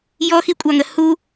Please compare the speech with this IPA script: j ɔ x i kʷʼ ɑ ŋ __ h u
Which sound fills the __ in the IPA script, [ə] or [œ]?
ə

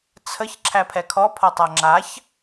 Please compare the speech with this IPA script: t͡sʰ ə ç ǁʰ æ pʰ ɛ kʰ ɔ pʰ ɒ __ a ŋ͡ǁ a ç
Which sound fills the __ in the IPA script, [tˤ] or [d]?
tˤ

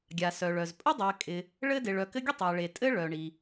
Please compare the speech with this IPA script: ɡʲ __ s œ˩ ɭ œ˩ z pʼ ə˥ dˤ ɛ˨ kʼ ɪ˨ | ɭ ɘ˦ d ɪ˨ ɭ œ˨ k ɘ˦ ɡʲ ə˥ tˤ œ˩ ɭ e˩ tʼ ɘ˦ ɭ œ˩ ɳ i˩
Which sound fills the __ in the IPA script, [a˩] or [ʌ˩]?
a˩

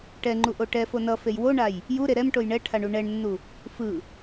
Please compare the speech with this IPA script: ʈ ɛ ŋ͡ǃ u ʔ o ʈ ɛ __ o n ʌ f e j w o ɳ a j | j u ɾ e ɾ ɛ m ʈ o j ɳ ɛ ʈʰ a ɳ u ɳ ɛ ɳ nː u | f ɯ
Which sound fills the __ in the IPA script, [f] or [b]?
f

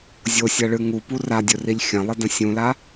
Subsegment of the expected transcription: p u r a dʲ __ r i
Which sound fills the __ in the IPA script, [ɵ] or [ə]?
ɵ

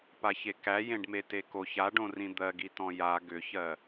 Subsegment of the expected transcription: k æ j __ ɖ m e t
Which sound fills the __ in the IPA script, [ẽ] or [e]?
ẽ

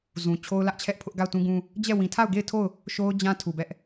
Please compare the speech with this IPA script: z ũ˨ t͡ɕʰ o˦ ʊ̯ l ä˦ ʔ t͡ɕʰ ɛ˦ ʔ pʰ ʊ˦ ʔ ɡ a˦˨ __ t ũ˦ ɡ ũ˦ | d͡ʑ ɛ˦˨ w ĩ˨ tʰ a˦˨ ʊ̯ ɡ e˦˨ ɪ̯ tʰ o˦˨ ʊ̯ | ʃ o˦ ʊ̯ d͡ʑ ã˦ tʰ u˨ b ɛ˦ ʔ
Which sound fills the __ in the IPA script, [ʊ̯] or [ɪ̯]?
ʊ̯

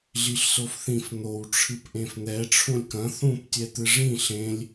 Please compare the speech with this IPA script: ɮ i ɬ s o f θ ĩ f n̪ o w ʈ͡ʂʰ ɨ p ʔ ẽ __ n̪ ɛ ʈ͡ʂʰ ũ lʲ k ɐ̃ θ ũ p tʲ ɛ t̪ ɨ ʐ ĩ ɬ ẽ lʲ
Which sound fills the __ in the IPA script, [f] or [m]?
f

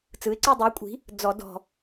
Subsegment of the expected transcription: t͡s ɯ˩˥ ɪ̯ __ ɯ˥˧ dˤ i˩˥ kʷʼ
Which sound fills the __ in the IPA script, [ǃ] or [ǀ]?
ǀ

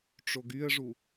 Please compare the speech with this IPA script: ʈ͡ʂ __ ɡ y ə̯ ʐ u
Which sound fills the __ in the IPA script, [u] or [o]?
o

